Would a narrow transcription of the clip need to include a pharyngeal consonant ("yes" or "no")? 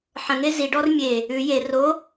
yes